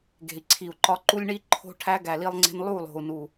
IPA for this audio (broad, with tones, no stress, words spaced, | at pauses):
ɡe̤˨i̯ǀʰi˨u̯ǃɒ˦ ǃu˦lʲɳi˦ ǃʰo̤˦ ʈʰæ˦ ɡæ˨li˦lˠŋ͡ǀe̤˦n lˠu˦˨lˠo̤˨u̯nu˨